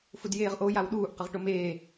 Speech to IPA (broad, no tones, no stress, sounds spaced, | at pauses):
f ʊ d j eː ʁ ʔ o j a w ɗ uː ʔ q ə ʁ ʈ o m eː